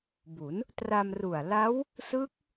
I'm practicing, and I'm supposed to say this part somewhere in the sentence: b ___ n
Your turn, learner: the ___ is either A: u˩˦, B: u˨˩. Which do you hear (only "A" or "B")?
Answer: A